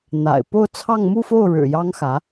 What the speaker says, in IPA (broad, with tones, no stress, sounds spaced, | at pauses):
n̪ a̰˨˩ ɪ̯ p o˥˧ ʊ̯ t͡sʰ ɑ˥˧ ŋ m u˥˧ f o˥˩ ʊ̯ ɻ ɻ̩˨˩ j ɑ˥ ŋ x ä˧˥